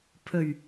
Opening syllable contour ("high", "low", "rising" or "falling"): low